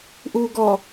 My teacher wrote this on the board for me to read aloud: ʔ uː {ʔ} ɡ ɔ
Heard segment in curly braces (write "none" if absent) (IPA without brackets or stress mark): none